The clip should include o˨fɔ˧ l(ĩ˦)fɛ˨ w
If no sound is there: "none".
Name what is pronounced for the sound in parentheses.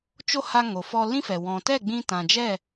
ĩ˦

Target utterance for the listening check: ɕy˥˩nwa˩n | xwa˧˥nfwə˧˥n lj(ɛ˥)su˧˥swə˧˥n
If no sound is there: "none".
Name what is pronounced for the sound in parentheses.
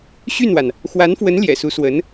ɛ̰˨˩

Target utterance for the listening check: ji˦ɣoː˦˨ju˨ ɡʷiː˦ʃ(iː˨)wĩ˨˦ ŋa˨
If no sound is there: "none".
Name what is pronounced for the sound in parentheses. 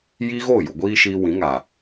iː˧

